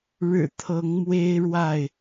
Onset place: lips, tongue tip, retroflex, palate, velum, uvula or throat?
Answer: retroflex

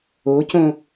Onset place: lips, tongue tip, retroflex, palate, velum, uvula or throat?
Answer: palate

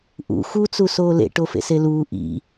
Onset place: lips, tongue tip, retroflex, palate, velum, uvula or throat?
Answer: throat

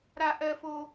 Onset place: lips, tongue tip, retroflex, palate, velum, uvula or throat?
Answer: tongue tip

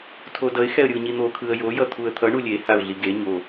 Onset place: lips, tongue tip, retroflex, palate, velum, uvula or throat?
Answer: tongue tip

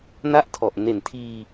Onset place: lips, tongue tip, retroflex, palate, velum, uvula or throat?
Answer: tongue tip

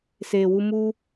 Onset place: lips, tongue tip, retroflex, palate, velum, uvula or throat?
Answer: tongue tip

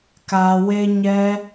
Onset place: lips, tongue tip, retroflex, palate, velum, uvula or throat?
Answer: velum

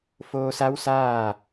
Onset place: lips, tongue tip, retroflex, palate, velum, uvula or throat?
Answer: lips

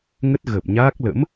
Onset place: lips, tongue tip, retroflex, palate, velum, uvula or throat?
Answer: velum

